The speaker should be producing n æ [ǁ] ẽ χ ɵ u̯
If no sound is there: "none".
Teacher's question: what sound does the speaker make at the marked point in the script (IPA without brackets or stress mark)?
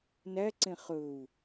ǀ